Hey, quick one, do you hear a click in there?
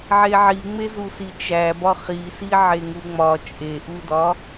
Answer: no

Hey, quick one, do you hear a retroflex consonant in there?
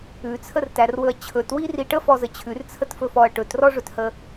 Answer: yes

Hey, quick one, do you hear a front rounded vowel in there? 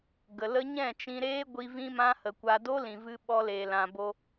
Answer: no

